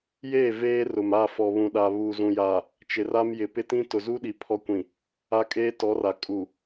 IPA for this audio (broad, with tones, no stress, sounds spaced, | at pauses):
j eː˦˨ v eː˦ r ʊ˨ m a˦˨ f ɔ˨ β ũ˨ ɗ a˨ β uː˨ z ũ˨ j aː˨ | t͡ʃ ɪ˨ r a˦ m j ɪ˨ p ɪ˦ t ĩ˦ t ʊ˨ z u˦ ɗ i˨ pʰ ɔ˦ kʷ ĩ˨ | a˦ kʼ eː˦ t ɔ˨˦ r a˨ kʼ u˨